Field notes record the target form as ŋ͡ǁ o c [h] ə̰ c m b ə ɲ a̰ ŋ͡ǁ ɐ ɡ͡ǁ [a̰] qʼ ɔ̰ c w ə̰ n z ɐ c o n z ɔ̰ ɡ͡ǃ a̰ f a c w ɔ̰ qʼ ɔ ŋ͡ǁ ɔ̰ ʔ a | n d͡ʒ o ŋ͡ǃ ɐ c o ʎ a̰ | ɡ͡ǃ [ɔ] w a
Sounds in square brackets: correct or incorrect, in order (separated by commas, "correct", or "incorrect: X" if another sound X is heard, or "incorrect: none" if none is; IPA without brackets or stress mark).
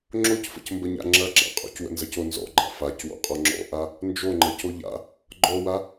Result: incorrect: f, correct, correct